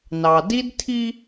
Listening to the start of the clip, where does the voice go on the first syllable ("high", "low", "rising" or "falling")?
low